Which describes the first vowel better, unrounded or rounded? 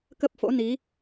unrounded